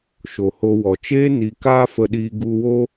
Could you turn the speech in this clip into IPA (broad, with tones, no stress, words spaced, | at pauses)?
ʃo˨ho˧ wɔ˨ t͡ʃeː˦ ni˧ kaː˦fə˧ɗiː˧ ɡu˧wo˦